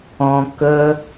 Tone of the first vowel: low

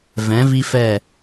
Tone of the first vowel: rising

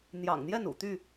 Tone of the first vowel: low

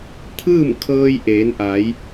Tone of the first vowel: falling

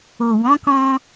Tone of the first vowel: low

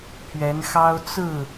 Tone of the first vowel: rising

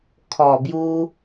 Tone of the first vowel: low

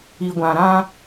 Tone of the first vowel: low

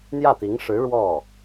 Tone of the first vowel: falling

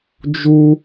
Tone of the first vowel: high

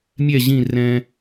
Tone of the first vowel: falling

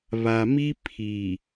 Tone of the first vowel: low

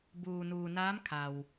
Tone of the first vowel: low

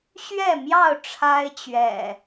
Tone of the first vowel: falling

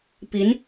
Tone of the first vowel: rising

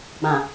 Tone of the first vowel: low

